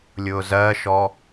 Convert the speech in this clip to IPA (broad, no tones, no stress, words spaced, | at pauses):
lʲʊːzɜʃɔ